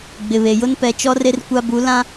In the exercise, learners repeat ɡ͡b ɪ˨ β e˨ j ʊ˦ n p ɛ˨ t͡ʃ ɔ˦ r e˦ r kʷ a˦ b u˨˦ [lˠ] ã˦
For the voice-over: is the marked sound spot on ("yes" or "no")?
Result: no